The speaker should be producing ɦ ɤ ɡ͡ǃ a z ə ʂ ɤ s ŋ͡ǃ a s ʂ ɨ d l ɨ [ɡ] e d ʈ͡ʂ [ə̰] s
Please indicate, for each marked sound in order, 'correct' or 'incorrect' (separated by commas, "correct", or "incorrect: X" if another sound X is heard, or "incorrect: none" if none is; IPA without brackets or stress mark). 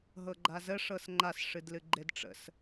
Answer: incorrect: ɡ͡ǃ, correct